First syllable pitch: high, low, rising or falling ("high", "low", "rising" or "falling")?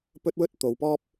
high